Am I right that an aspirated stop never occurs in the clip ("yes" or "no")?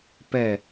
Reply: yes